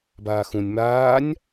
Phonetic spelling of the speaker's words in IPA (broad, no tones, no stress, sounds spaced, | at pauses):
b aː x ũ nʲ m aː nʲ